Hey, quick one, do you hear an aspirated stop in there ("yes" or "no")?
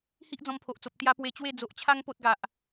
yes